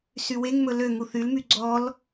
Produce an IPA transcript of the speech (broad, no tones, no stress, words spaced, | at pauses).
syweŋmɵ løŋuθ ylmy ɡ͡ǀɔl